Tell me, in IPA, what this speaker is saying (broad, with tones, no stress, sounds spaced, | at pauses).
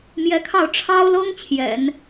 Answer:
m j ɛ˧˥ kʰ ɑ˥˩ ʊ̯ ʈ͡ʂʰ ɑ˥ ʊ̯ l ɤ˥ ŋ t͡ɕʰ j ɛ̰˨˩˦ n